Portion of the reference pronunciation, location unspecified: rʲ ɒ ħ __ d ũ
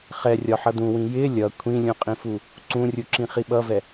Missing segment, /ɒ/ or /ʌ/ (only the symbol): ʌ